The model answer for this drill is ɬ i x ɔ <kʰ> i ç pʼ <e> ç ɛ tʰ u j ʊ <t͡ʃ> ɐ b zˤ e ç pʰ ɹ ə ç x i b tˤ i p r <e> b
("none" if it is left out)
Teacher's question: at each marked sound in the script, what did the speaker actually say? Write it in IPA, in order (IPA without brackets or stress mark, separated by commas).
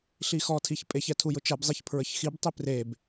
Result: tʰ, e, t͡ʃ, e